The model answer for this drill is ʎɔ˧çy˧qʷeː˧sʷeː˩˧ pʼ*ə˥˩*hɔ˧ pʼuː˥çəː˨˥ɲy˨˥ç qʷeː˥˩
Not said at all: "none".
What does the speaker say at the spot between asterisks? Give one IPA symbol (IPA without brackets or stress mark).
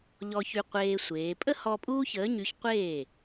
ə˥